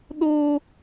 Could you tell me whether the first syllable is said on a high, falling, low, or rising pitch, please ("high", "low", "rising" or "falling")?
high